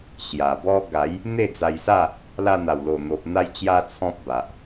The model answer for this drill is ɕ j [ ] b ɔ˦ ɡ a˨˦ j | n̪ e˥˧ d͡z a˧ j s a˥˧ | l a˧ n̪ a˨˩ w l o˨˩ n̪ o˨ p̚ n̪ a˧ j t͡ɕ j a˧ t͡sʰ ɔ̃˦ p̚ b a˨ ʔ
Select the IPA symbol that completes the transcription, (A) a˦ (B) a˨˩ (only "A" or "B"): B